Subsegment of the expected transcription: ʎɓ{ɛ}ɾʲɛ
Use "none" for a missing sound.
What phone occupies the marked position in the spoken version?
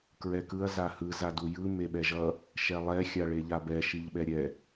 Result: ɛ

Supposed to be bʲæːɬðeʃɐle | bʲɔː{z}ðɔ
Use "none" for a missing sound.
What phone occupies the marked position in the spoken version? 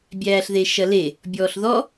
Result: ɬ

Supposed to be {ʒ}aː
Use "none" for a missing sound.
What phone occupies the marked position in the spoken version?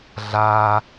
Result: ɮ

